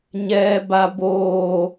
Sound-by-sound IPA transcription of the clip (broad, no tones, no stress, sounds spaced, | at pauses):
ɲ ɛː b a b oː